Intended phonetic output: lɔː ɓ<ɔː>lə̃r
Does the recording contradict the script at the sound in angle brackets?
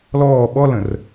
yes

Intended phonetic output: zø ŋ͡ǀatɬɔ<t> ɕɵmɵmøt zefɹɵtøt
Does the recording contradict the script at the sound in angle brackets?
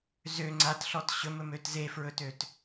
no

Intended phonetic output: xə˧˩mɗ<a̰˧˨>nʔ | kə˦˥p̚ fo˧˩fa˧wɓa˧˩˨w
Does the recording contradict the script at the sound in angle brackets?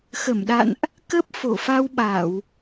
no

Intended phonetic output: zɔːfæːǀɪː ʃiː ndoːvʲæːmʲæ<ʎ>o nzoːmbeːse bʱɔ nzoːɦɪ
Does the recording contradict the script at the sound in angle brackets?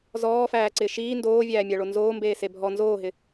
yes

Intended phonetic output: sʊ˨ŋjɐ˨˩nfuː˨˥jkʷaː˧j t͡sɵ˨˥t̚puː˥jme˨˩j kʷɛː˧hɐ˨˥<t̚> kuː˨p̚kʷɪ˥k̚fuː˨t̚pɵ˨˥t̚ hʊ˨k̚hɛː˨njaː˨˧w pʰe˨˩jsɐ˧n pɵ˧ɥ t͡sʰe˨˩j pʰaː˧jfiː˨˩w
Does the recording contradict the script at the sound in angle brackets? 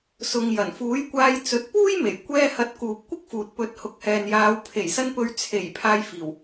no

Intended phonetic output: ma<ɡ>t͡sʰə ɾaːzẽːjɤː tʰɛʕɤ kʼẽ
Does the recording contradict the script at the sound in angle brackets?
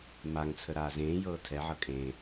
yes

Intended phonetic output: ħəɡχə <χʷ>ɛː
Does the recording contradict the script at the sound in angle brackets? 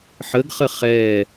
yes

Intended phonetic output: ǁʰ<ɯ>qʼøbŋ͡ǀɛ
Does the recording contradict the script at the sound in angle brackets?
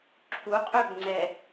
yes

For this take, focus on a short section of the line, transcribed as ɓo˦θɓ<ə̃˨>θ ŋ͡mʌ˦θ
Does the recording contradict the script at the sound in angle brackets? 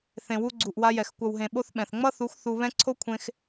yes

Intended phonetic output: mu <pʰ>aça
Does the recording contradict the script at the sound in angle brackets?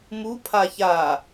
no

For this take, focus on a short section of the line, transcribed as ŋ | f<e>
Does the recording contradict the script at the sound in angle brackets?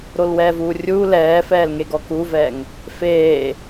yes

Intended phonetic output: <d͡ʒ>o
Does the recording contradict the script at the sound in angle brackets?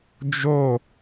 no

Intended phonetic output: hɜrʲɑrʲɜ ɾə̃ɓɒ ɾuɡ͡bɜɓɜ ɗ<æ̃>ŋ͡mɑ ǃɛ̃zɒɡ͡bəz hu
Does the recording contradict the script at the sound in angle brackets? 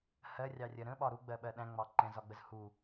no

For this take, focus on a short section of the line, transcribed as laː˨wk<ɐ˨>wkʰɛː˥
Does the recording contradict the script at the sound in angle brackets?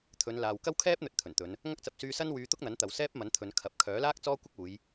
yes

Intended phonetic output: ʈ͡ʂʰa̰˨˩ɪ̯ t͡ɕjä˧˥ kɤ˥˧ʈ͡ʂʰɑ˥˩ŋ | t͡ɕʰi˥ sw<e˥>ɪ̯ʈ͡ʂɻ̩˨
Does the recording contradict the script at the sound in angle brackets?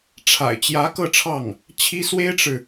no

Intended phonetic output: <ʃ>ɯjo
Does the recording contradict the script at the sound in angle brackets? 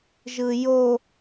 yes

